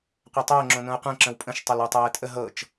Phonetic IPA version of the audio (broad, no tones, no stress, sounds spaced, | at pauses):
qʷ ɛ tˤ əː ŋ͡ǁ õ n õ ə̯ qʷ ɛ̃ ǁ ə̃ w pʼ ə̃ ʃ tˤ ɤ l ə˞ tˤ ɛː tʼ ə ɦ ɤ t͡ʃ